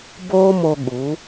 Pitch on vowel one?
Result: high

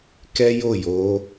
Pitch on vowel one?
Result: high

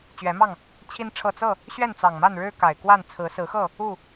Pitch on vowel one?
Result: rising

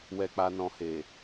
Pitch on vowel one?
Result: low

